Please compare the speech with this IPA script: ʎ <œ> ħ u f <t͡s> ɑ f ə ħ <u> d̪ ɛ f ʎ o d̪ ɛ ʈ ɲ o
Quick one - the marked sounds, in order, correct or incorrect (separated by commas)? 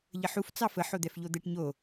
incorrect, correct, incorrect